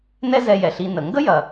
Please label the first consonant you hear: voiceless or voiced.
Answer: voiced